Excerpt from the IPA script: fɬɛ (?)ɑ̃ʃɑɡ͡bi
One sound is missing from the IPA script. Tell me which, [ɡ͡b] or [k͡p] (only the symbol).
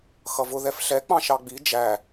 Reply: k͡p